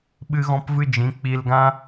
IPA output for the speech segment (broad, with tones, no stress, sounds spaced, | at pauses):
ɓ ɨ˦ ɣ ɔ̃˦ p v ɨ˦ d͡ʒ ĩ˨˦ k͡p i˧ l ɡ ã˦